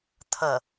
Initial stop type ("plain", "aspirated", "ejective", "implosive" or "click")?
aspirated